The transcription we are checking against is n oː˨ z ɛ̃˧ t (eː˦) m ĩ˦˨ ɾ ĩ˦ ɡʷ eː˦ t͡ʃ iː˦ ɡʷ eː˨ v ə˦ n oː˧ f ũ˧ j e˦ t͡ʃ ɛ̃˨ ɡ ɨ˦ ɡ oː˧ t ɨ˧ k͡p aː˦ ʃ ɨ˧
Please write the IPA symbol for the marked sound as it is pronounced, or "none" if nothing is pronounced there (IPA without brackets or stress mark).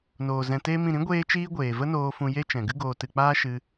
eː˦